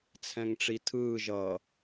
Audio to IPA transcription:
t͡sʰ ɛ̃ ŋ ʈ͡ʂ i tʰ ɯː ʒ ʌ

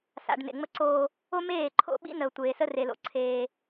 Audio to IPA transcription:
s a̰˨ ɖ n ḛ˨ ŋ͡m ə˦ ǀ oː˦ | o˦ m eː˦˨ ǃʰ o̰˦ ɓ ḭ˦ n ə˨ ʊ̯ tʷ eː˨ s ə˦ r e˨ l o̰˨ ǀʰ eː˦

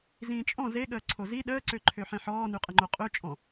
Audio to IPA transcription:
z ĩː t͡ʃʼ ɔ̃ z e ɠ əː ǀʰ o z i ɗ əː ǀ ø ǃʰ ø ħ ẽ ħ ɔː n y qʼ ə ŋ͡ǃ o qʼ ø t͡ʃʼ ɔ̃

